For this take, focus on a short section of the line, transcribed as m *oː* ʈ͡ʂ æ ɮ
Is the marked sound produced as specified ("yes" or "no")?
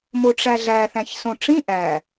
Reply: no